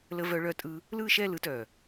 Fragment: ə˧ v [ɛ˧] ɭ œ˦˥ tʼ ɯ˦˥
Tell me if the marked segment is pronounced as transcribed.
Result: no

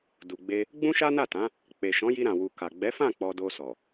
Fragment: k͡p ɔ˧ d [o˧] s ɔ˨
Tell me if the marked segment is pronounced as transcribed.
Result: yes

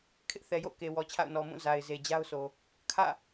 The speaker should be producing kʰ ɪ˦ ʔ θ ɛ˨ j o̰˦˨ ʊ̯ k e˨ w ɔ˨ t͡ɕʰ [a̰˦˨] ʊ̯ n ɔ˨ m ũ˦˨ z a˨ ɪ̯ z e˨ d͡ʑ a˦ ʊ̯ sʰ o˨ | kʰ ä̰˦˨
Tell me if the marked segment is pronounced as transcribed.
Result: yes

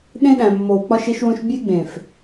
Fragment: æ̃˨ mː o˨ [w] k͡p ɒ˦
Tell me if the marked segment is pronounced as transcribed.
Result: yes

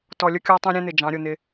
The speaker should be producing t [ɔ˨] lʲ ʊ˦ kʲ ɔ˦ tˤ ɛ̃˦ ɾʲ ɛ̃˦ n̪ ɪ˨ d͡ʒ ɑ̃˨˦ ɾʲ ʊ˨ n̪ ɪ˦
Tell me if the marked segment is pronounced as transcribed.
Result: yes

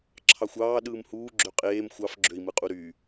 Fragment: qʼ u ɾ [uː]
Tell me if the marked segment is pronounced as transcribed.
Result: no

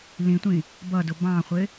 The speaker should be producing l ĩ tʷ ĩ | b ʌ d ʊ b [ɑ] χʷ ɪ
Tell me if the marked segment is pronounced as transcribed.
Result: no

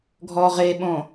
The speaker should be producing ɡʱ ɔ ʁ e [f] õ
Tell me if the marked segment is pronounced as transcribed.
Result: no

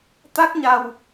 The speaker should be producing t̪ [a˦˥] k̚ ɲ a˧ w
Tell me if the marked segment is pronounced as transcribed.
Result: yes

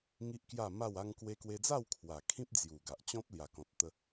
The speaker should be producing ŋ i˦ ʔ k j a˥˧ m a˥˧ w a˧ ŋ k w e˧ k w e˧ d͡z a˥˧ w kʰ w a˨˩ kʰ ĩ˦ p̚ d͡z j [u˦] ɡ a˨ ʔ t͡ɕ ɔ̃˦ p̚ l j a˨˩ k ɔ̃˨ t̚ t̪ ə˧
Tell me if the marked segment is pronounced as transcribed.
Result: no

